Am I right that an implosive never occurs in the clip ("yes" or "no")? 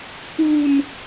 yes